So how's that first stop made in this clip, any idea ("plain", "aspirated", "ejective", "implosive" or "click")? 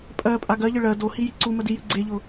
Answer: ejective